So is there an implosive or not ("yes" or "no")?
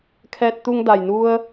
no